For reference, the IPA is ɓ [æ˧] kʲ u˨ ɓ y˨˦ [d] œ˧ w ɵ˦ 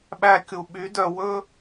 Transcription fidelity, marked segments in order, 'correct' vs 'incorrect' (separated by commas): correct, correct